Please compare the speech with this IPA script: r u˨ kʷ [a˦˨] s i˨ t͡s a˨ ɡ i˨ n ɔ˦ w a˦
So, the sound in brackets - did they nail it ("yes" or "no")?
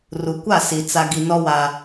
yes